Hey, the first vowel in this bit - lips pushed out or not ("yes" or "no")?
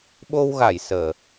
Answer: yes